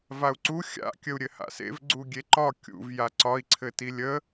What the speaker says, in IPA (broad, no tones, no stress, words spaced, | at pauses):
vau̯ǀu xʲa̰ kʲəu̯ɾʲɘha̰sḛv ɡ͡ǀuɡʲeǃɒ kʲṵv jaǀɒi̯ ǀʰɘtilʲə